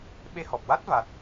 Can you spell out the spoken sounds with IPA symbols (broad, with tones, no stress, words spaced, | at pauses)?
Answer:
ɓe˧hɔ˨˩p̚ wa˦˥t̚ va˦˥t̚